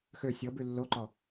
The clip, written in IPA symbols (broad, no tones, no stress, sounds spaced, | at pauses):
x ø sʲ ɔ b ʉ lː o ǃ ɔ